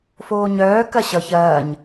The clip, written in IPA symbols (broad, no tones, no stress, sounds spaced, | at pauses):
f oː ɲ œː k ɐ ɕ ʌ ç ɐː ɲ